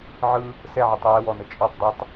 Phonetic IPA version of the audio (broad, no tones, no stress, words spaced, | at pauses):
ʕɯ | sɛʕitˤ jɛwɔnə t͡ʃʼɔtˤ dˤɛtˤ